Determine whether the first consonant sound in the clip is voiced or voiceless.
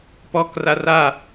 voiceless